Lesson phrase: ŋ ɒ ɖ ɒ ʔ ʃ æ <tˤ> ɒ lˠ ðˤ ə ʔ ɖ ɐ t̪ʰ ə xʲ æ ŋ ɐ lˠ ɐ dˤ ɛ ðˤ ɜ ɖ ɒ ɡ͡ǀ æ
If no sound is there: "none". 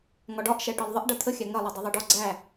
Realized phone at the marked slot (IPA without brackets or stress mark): ʈ